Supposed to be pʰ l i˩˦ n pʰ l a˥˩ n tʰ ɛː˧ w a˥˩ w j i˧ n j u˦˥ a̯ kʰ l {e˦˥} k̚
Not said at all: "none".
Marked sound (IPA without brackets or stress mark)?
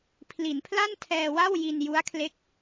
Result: e˦˥